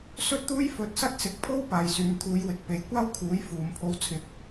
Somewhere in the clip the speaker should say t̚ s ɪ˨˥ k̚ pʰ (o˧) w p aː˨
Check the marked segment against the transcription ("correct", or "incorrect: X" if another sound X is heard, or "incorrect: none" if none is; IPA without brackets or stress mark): incorrect: o˥